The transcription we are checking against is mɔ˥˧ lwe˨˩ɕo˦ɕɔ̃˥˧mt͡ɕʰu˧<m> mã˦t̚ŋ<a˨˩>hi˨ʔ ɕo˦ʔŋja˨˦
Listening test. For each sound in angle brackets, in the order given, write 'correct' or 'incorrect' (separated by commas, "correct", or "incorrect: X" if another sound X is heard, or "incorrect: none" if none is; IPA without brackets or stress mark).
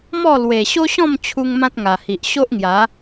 incorrect: ŋ, correct